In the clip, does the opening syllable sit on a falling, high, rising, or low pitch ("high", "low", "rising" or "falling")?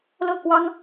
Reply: falling